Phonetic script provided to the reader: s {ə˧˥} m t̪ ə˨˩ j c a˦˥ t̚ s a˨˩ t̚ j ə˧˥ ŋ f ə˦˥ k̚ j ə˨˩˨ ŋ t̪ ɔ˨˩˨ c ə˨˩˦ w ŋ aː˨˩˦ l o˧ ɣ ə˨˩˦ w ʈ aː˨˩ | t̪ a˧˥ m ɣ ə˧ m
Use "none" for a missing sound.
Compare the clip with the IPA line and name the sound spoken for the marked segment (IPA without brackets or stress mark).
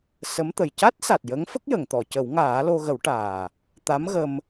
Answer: ə˧˥